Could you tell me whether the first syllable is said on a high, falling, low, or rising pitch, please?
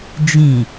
low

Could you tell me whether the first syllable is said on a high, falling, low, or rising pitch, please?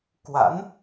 rising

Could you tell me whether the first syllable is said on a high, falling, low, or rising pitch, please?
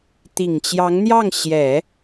low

